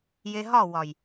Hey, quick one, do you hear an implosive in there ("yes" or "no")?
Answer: no